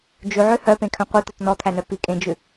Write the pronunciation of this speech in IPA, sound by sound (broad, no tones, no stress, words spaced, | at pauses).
d͡ʒʉʕø hœpẽkʰœ̃ qʷet̪ɔt nɔt̪ʰænœ pikʼẽd͡ʒʉ